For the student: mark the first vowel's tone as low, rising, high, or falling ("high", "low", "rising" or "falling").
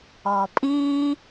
low